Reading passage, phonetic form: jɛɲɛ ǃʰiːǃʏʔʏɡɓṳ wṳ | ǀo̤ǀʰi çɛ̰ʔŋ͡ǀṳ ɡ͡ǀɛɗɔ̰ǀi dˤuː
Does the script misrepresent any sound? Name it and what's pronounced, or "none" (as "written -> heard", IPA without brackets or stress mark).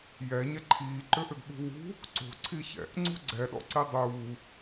none